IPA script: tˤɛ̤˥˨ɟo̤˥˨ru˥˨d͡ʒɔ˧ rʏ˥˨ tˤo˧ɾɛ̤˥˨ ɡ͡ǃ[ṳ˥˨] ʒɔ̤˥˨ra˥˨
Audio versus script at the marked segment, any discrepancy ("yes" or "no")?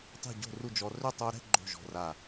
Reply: yes